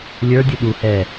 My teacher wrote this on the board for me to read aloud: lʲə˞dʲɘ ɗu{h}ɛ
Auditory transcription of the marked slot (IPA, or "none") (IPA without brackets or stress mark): h